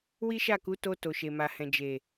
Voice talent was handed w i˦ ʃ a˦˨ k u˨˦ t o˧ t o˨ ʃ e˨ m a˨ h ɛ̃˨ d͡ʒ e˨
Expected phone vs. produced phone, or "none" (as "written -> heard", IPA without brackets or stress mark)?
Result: none